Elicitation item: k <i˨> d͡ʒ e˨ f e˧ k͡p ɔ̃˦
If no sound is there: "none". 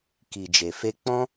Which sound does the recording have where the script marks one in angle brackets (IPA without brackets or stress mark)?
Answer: i˨